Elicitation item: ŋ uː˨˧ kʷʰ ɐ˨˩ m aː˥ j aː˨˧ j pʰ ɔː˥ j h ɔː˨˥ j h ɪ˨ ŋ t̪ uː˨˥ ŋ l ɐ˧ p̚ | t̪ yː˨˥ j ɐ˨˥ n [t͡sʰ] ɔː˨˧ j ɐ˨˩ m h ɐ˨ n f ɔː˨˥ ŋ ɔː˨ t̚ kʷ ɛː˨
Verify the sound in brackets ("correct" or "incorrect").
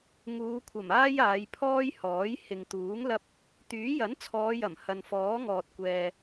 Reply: correct